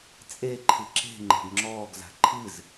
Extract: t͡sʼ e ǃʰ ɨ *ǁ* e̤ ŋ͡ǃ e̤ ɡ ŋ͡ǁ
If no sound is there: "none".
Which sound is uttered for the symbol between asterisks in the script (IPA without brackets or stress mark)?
ǁ